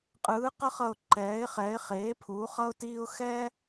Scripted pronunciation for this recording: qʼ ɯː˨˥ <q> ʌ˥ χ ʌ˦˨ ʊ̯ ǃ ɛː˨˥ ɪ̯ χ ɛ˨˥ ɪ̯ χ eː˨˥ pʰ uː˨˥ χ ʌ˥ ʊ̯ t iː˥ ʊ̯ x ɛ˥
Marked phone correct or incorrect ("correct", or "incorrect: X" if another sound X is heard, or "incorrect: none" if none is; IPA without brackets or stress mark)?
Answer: correct